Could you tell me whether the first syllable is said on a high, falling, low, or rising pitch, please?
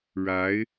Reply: rising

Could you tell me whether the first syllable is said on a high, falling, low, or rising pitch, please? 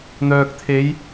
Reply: low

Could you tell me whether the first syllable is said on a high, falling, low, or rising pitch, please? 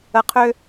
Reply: low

